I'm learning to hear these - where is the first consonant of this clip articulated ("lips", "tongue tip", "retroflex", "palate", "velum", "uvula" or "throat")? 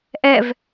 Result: throat